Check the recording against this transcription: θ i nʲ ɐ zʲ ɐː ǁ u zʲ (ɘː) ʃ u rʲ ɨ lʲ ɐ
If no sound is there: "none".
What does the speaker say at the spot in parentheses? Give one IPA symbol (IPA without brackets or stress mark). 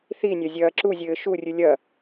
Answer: ɘː